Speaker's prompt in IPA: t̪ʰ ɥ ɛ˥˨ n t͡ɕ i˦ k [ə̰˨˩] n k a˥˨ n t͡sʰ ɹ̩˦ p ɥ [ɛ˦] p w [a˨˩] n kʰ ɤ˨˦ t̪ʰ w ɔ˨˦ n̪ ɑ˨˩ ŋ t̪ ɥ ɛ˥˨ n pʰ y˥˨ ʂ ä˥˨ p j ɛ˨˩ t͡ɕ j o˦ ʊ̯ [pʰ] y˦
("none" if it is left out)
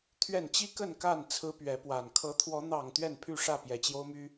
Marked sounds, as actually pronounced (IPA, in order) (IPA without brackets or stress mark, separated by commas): ə˥˨, ɛ˨˦, a˨˩, m